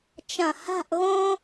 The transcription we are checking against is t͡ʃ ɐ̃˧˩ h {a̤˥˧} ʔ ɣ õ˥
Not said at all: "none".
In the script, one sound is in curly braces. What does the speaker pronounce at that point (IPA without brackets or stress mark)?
a̤˥˧